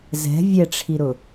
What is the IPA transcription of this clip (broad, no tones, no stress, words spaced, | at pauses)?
zɛ̤ vʲɛʈ͡ʂʰiɾʊ